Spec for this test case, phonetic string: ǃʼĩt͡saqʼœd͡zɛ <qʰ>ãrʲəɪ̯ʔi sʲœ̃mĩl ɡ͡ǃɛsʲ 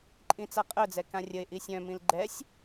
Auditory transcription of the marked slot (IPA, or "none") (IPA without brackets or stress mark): k